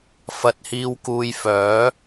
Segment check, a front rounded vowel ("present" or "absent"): present